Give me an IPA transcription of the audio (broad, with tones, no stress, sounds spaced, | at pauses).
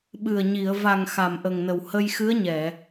ɓ ɨ˨˩ ə̯ ɲ i˨˩˨ ə̯ v a˨˩ ŋ x a˨˩ m ʔ ə˨˩ ŋ n ə˨˩ w h ə˧ j x ɨ˧˥ ə̯ ɲ ɛ˨˩˨